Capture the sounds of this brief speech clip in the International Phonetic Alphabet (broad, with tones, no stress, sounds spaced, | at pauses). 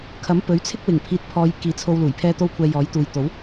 kʰ ɐ˨˥ m p ɵ˨˥ ɥ t͡sʰ ɪ˥ k̚ w ɪ˨˩ ŋ pʰ iː˨ t̚ pʰ ɔː˨˧ j k iː˨˥ t͡sʰ o˧ w l uː˨˩ j pʰ ɛː˥ t̪ o˥ w kʷʰ ɛː˧ j ɔː˨˥ j t̪ uː˨ j t̪ o˨˥ w